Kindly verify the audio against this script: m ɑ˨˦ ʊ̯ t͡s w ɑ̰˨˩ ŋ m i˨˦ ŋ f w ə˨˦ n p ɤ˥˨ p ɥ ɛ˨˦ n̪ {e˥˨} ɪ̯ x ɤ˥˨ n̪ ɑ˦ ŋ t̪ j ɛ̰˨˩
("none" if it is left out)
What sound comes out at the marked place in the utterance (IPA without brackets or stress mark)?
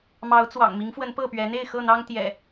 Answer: e˥˨